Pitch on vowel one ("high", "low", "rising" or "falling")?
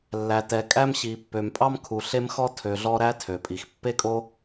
low